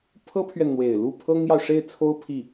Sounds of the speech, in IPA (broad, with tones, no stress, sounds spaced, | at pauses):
pʰ ɤ˥ pʰ ɥ ɛ˨ n n̪ w e˨˩ ɪ̯ l u˥˩ pʰ ɤ˥ ŋ j ɑ˨ ʊ̯ ʂ e˥˩ ɪ̯ t͡sʰ o˥ ʊ̯ pʰ i˥˩